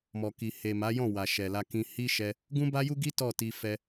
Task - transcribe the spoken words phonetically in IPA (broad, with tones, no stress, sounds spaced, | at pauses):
m ɔ˨ k i˨ h e˨ m a˨˦ j ɔ̃˦˨ w a˨ ʃ ɛ˨ l a˧ k ĩ˧ h i˦ ʃ ɛ˦ | ɡ ũ˦ b a˦ j u˦ ɡ i˦ t ɔ˦˨ t i˧ f ɛ˧